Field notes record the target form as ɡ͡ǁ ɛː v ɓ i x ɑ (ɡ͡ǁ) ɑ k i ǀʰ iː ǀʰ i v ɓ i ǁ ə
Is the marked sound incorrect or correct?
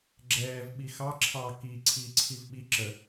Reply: incorrect: ǁʰ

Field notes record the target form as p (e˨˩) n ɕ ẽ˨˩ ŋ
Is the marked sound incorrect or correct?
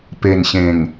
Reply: correct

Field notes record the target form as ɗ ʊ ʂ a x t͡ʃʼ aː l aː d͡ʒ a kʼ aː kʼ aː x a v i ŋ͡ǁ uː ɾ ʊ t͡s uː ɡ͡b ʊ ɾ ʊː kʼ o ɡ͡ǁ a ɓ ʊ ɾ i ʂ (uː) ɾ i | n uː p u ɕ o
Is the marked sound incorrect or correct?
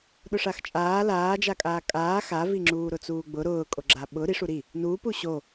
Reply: incorrect: u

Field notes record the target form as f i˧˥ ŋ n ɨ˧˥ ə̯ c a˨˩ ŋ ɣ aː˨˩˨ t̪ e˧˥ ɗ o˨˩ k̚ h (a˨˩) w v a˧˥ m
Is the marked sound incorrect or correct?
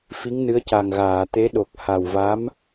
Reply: correct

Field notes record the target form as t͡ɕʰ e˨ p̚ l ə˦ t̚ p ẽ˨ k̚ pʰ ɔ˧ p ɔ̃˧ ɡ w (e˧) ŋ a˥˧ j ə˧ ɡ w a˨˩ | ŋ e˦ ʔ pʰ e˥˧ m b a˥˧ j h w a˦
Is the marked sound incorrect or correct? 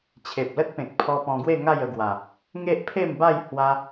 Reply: incorrect: e˥˧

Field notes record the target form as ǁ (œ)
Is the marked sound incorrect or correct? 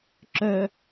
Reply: correct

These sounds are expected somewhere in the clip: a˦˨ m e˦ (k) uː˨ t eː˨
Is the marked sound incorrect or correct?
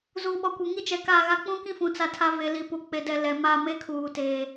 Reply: incorrect: kʰ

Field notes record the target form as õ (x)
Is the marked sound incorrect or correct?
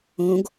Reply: incorrect: ɡ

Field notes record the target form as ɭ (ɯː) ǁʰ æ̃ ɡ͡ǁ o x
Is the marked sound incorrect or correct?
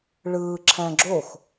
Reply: correct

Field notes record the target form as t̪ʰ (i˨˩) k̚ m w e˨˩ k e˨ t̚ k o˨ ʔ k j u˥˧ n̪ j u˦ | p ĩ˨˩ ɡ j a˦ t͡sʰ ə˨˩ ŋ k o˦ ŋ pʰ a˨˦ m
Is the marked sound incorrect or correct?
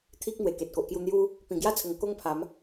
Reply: incorrect: i˦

